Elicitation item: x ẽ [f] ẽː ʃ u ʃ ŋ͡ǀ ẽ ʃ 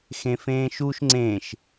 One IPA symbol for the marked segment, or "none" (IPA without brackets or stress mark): f